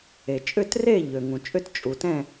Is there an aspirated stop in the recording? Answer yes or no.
no